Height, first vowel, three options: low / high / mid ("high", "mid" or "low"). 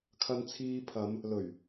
low